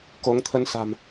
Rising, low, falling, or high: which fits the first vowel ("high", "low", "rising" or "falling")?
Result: rising